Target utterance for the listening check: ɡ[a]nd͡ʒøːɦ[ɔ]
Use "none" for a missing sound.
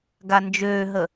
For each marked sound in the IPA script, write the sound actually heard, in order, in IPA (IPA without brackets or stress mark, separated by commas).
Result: a, ə